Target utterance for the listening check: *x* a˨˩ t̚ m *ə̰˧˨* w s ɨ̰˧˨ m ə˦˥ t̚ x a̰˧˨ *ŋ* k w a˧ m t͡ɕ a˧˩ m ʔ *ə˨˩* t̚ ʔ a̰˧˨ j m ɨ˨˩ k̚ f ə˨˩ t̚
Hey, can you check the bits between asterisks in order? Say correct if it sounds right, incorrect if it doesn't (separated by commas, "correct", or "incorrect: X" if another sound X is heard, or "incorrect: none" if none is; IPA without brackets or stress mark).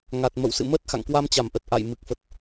incorrect: ŋ, correct, correct, correct